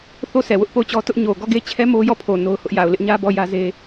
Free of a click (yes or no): yes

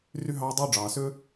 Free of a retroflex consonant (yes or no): no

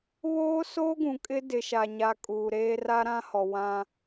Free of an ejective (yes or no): no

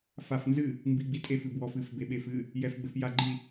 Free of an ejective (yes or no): no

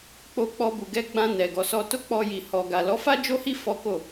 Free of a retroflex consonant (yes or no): yes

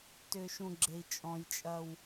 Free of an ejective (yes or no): no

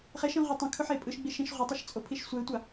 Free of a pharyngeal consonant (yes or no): no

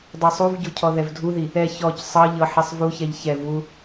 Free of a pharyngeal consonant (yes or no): no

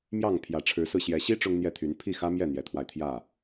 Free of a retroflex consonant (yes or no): no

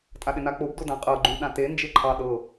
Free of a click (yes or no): no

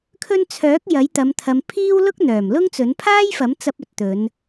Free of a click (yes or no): yes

